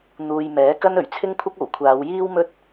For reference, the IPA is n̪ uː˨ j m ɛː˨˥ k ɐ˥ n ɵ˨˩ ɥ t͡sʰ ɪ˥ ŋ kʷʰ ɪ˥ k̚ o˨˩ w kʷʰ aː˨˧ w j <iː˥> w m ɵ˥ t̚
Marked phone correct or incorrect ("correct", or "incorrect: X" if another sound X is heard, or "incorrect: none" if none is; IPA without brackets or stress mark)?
correct